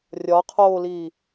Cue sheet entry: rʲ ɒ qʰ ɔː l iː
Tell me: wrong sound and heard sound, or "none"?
ɔː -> oː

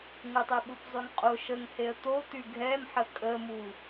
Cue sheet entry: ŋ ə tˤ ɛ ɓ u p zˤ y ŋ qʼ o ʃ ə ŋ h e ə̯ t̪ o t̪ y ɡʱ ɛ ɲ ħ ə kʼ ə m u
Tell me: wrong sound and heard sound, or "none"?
ɲ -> m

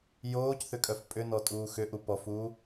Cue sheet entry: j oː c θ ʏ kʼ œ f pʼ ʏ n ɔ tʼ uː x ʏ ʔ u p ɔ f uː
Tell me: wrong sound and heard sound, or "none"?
none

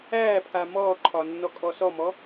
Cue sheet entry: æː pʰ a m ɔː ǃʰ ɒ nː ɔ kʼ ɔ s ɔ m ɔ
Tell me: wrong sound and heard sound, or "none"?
none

